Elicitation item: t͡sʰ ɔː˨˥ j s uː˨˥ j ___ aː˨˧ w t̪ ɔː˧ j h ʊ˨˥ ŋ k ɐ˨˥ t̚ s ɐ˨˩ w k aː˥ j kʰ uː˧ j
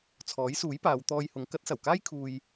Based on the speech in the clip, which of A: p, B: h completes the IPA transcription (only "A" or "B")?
A